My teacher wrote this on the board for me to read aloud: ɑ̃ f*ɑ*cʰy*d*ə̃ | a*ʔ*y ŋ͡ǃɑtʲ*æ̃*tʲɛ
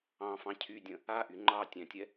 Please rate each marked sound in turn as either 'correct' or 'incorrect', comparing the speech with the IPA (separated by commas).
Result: incorrect, incorrect, correct, correct